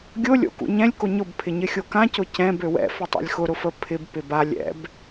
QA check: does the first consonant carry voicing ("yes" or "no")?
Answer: yes